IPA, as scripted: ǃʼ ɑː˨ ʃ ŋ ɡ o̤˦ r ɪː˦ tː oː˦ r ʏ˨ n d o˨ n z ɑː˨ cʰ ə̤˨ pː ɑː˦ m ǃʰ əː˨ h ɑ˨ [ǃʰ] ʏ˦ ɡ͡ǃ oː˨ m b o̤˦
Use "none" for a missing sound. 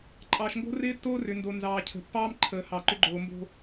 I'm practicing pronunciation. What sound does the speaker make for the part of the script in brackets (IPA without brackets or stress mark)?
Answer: ǃ